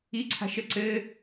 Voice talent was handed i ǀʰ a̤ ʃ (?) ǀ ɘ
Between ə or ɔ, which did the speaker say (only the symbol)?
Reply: ə